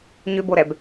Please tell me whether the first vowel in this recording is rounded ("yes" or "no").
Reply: yes